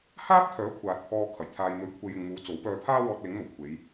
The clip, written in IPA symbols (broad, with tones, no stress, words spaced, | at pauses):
haː˥p̚t̪ʰœː˨˥ kʷʰaː˨t̚pʰɔː˧kʰɐ˨˩j t̪ʰaː˨jn̪ɵ˨˥ɥkʷʰe˨j ɪ˨ŋmuː˨˧ t͡so˨˥w pœː˧pʰaː˥ wɔː˧t̚lɪ˨˥ŋn̪o˨˩wkʷʰe˨˧j